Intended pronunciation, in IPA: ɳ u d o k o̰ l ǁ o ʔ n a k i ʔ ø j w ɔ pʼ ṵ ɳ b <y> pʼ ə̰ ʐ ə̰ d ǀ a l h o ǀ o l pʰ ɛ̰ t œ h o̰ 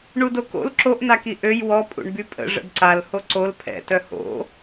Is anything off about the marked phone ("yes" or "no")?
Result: no